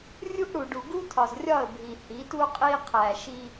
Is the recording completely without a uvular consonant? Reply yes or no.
no